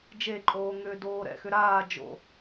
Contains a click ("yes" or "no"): yes